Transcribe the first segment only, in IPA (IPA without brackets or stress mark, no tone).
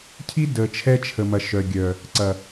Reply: cʰ